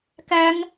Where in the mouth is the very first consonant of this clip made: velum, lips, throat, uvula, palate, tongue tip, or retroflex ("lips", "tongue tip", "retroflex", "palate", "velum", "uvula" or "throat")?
velum